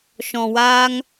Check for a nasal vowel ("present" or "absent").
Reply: present